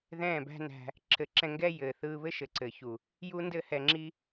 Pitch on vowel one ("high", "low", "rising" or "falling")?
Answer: falling